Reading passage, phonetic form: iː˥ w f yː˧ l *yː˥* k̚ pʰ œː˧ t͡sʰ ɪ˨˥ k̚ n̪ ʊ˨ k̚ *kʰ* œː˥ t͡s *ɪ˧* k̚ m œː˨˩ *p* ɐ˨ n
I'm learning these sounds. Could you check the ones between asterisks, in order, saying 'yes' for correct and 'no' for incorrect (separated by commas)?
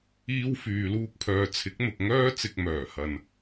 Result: no, no, yes, no